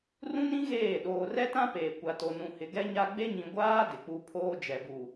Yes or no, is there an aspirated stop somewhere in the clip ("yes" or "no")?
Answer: yes